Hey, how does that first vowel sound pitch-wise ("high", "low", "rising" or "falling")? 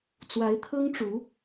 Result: rising